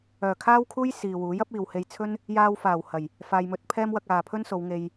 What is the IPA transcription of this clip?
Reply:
œː˨˩ kʰ aː˥ w kʰ uː˥ j s iː˨ w uː˨˥ j ɐ˥ p̚ iː˨ w h e˧ j t͡sʰ ɵ˥ n | j aː˧ w f aː˨˩ w h ɐ˨˩ j | f aː˨ j m ɵ˨˥ t̚ pʰ ɛː˥ m w ɐ˧ k̚ aː˨ pʰ ɵ˥ n s o˨˧ w ŋ e˧ j

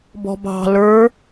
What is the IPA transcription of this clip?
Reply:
b ɔ̤ b ɑ̤ l ə˞

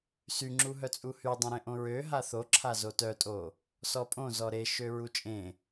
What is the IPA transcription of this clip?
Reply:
s y ŋ͡ǁ u ɦ œ t͡sʼ u h y dˤ ẽ ɾ ẽ ʔ õ ɹ ø ɦ a θ o ǁʰ a z o t œ tʼ o | s ɔ pʼ õ z ɔ ɾ e ʃ ø ɹ u t͡ʃʼ ẽ

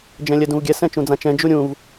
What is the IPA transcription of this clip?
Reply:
d͡ʒ ɛ̃ lʲ ɛ d ũ v ɡʲ ɛ s ɛ̃ t͡ʃ ũ d͡z ã t͡ʃ ɛ̃ d͡ʒ u ɾʲ ũ v

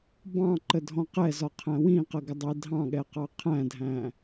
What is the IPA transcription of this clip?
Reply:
b ɑ̃ ǃ ə dʱ ɔ̃ q ɛ z ɒ qʰ æ̃ w ĩ q ə ɡ ɪ dˤ i dʱ ɑ̃ ɠ ɛ q ɑ qʰ æ̃ dʱ æ̃

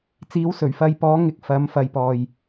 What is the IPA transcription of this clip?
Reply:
t͡s iː˨˥ w s ɵ˨˩ ɥ f ɐ˧ j p ɔː˨˥ ŋ ɪ˨˥ k̚ f ɐ˨˥ m f ɐ˧ j p ɔː˨ j

